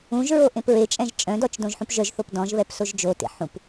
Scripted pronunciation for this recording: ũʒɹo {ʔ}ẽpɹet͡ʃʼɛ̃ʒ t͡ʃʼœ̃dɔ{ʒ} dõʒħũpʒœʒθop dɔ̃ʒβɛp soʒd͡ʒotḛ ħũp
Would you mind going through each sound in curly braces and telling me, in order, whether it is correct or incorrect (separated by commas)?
correct, incorrect